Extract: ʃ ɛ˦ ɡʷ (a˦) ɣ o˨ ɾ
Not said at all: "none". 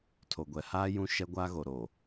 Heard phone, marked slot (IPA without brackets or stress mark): a˦